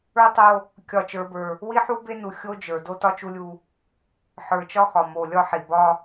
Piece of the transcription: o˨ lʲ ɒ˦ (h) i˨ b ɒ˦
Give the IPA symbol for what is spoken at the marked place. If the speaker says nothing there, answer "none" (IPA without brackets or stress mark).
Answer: ħ